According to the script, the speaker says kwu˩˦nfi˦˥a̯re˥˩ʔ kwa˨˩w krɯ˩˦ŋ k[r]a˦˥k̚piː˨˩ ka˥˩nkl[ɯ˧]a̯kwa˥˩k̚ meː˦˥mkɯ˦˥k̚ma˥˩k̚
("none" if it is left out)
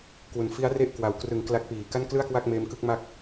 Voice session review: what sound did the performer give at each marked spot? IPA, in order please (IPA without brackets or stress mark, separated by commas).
l, ɯ˥˩